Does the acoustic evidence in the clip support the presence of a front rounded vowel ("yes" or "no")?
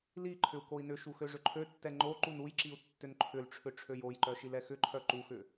yes